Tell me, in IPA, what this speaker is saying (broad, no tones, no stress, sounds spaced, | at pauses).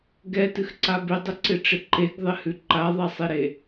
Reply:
ɡ ɛ t ɨ x ǀ a b ɪ dˤ ɪ ǀ ɪ ʈ͡ʂ ɪ ǃ e ɡ ðˤ ɪ h ʉ ǃ a ðˤ ɛ sˤ e ɾ e